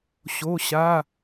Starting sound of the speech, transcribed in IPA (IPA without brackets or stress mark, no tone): ɕ